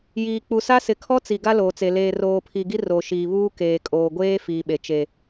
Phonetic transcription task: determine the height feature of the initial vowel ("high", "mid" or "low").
high